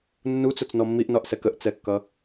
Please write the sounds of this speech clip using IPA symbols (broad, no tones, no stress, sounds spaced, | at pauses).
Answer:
nː u t͡s ʊ t͡s n ɔ mː i ʔ n ɒ ʔ s ɛ k ə ʔ t͡s ɛ kː ʌ